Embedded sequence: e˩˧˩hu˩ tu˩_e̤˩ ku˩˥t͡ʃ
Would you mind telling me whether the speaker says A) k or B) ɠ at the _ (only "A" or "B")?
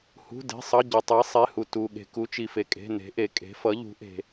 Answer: B